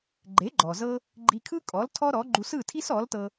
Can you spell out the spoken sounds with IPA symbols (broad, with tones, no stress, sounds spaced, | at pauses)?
ɡ͡ǃ e˩˥ ɡ͡ǃ ɔ˩ z ɤ˧ | ɡ͡ǃ i˧ kʰ ɯ˥ kʼ ɔ˩˥ l tʰ ɔ˥ ɾ ɔ˩˥ ɡ͡ǃ u˧ s ɯ˥˩ tʰ i˥ s ɔ˩˥ l t ɤ˧